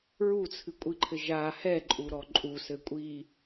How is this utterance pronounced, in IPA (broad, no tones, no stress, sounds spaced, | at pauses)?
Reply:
ɹ u t͡sʰ ɨ kʷʼ i ǃʰ ɘ ʒ a h ɛ ǃʼ u ɾ ɔ ǃʼ u s ɘ kʷʼ i